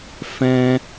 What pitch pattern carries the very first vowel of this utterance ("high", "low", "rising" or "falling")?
high